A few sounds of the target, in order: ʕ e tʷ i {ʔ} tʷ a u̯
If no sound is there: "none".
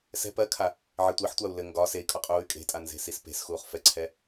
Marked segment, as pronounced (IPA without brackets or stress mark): ħ